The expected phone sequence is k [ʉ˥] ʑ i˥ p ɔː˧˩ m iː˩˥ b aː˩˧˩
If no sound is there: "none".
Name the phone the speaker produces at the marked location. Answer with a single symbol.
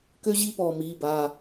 ø˥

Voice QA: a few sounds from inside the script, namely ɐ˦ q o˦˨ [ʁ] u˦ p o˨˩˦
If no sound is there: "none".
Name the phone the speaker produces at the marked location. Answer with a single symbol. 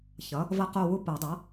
w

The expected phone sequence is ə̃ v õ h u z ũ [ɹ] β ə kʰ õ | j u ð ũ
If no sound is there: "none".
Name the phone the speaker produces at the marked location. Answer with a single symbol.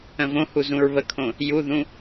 ɹ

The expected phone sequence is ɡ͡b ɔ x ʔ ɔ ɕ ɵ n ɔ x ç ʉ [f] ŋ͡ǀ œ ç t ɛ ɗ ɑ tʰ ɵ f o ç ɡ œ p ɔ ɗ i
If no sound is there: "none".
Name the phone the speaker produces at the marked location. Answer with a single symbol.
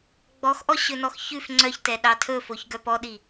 f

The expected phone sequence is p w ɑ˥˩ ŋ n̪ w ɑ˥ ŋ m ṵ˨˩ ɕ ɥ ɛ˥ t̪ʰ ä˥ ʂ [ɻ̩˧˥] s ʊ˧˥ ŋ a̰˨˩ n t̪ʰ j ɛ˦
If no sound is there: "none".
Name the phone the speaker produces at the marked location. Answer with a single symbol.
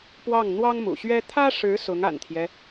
ɻ̩˧˥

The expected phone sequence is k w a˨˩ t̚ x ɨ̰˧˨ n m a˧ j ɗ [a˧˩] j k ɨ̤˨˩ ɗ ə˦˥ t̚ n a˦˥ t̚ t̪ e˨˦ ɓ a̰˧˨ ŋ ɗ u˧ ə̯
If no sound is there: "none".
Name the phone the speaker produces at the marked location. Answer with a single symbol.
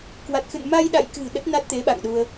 a̰˧˨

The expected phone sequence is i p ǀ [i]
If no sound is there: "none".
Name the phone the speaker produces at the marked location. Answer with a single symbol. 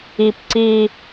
i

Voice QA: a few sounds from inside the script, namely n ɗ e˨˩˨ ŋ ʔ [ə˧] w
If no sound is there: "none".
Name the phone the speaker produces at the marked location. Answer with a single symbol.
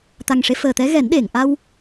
a˧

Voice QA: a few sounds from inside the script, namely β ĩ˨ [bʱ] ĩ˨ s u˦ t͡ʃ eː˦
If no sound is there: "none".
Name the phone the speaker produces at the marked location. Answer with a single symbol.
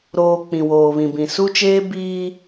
b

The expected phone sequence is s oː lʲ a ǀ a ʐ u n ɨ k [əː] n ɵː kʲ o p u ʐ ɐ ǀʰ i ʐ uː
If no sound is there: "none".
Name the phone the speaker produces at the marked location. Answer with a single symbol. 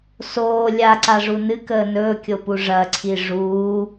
əː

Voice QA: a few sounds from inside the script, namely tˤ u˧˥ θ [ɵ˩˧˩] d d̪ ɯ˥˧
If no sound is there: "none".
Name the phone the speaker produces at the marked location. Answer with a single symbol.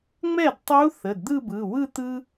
ə˩˧˩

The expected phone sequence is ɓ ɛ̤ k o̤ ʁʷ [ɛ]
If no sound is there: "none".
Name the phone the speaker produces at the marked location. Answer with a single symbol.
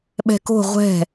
ɛ̤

